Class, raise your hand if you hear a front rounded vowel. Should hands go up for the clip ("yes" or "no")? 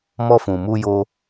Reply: no